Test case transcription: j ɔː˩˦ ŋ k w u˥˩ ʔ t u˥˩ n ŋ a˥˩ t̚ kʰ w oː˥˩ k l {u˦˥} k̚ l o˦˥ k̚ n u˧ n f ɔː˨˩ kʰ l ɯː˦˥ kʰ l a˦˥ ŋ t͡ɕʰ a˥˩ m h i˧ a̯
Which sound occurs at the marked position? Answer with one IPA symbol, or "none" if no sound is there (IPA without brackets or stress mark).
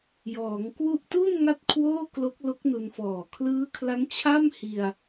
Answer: o˦˥